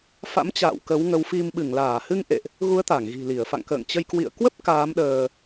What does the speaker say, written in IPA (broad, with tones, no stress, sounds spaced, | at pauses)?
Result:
f a̰˧˥ m t͡ɕ a̰ː˧˨ w k ə˨˦ w ŋ ə˨˦ w f i˧ m ɓ ɨ˧˩ ŋ l aː˧˩ h ɨ˧ ŋ ʔ ḛ˧˨ ʔ | ɣ u˨˦ ə̯ t̪ a˧˩ ŋ ɣ i̤˨˩ l i˧˩ ə̯ f a̰˧˨ ŋ k ə̰ː˧˨ ŋ t͡ɕ ə˧ j k w ḭ˧˨ ə̯ k w ə˦˥ p̚ k aː˨˦ m ɗ əː˧